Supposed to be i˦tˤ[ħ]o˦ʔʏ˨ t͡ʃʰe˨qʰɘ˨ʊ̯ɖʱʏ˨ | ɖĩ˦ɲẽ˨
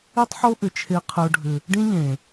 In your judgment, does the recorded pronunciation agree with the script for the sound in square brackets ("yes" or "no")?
yes